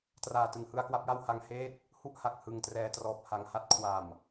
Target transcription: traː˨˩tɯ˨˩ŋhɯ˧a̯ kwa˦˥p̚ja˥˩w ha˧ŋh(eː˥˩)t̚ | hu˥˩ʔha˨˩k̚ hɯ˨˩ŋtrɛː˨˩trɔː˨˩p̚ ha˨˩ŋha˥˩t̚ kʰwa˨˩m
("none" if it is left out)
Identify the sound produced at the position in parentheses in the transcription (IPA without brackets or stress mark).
eː˥˩